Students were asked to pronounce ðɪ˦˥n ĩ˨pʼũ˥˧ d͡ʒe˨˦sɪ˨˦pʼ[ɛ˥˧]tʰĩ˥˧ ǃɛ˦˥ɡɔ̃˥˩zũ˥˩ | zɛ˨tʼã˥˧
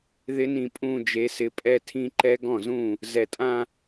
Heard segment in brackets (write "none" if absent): ɛ˥˧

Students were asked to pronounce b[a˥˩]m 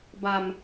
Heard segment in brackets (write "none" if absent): a˧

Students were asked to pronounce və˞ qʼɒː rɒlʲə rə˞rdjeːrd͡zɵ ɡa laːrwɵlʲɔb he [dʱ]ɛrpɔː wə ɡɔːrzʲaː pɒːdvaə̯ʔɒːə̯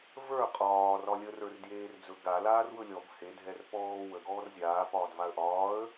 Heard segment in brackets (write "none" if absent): dʱ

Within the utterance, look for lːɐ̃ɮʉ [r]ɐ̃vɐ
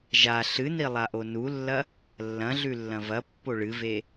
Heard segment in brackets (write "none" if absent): lː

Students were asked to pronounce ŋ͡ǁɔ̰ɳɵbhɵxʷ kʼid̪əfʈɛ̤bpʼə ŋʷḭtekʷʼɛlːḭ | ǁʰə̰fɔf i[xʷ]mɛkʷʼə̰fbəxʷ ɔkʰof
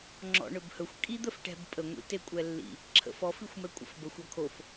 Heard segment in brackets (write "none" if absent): xʷ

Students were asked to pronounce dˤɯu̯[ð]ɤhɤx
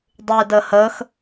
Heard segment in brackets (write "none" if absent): d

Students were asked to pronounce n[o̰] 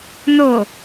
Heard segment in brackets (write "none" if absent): o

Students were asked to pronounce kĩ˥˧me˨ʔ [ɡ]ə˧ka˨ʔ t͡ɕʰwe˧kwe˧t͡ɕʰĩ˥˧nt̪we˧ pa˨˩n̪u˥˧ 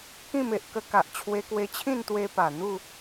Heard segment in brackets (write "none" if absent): k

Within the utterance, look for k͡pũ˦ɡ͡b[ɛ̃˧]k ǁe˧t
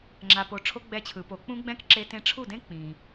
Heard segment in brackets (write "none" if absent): ɛ̃˦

